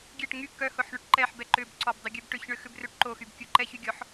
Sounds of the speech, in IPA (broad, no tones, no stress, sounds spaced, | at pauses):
ɡʲ ɛ ʈ ŋ y k œ h ʊ ħ ɳ ʏ ʈ ǃ ɛ ħ b ɛ ǃ ʏ b ǀ ɔ b dˤ ʏ ɡʲ œ b ʈ ʏ ç ɳ ʏ x ʏ b r ø ʈ ǃ o x y b kʲ o ǃ ɛ ç y ɡʲ ɔ ħ